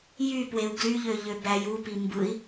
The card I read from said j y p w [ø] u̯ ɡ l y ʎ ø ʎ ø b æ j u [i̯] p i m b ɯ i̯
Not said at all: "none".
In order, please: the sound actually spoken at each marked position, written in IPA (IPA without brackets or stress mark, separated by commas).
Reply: e, none